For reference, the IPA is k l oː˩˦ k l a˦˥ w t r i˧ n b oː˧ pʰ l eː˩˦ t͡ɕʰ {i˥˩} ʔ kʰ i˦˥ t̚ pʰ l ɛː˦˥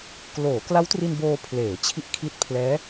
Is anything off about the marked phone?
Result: yes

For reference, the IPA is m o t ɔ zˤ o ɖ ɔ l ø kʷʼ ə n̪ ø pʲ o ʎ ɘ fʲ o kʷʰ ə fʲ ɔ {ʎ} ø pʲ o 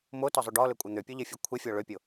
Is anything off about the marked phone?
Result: yes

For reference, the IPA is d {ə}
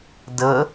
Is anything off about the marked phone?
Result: no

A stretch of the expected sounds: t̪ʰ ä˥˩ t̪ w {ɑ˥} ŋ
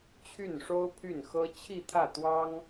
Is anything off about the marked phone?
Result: no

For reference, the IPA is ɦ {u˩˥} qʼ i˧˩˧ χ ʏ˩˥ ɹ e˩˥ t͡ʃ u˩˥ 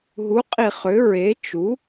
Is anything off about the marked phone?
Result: no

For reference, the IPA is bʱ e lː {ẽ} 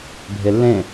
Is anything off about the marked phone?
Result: no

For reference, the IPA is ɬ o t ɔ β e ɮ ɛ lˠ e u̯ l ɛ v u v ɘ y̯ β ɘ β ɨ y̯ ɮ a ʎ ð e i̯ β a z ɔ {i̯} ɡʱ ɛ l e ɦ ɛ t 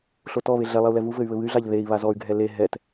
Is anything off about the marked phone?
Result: yes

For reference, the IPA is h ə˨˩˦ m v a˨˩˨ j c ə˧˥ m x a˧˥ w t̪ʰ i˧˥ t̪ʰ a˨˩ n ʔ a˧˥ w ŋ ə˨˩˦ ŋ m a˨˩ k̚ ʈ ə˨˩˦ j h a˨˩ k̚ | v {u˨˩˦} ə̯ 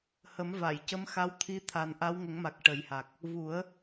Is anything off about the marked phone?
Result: no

